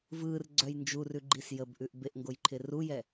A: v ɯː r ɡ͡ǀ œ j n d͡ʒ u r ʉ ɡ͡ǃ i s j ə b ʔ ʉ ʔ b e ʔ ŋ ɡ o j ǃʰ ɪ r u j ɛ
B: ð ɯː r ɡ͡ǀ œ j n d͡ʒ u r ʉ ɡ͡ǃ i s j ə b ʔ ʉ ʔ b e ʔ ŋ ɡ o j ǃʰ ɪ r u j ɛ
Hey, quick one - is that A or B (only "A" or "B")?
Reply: A